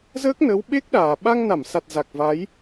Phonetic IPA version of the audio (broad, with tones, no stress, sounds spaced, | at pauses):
z əː˦˥ k̚ n ə˨˦ w ɓ e˦˥ k̚ ɗ aː˨˩ ɓ a˧ ŋ n a˧˩ m s a˨˩ t̚ z a˨˩ k̚ v a˨˦ j